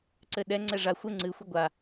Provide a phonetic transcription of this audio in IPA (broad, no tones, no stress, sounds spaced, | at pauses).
ǀ ɘ ɗ ɛ ŋ͡ǀ ɛ ʐ a xʷ ɘ ŋ͡ǀ ɨ xʷ i ɡʷ a